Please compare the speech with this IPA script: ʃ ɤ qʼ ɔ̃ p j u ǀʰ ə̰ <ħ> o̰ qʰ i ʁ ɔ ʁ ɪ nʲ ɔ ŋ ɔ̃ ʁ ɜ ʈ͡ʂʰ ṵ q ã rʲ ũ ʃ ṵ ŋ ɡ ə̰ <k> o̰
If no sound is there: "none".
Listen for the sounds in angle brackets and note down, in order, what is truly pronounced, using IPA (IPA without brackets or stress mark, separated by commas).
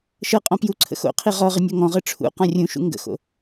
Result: x, x